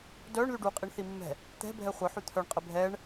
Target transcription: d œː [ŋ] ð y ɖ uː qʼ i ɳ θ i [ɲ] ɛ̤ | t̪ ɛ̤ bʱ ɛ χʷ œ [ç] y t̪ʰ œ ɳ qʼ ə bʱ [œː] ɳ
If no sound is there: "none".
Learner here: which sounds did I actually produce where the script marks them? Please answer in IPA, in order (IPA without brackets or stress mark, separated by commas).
ɳ, mː, ħ, ɛː